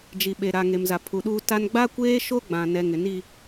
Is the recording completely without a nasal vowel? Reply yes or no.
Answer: no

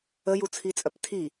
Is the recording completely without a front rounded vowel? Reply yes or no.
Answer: no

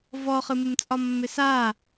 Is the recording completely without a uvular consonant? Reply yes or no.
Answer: no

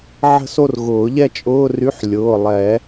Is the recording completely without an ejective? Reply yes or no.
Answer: no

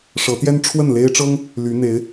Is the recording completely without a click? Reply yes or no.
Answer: yes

